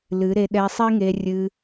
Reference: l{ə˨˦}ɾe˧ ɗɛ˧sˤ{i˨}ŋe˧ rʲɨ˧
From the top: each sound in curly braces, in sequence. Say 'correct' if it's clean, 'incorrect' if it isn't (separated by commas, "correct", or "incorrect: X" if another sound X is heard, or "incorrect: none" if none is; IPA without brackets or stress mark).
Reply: incorrect: ɨ˨˦, incorrect: i˦